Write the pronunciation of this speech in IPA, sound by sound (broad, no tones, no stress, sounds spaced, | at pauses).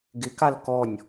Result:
ɡ ɪ k a l k ɔ nʲ